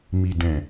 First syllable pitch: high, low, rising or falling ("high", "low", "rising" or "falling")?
low